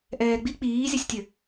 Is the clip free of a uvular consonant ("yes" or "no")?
yes